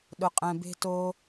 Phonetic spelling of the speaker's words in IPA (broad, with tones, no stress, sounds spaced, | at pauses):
ɗ ʊ˩ qʼ ɛ̃˩ b e̤˧ t o˧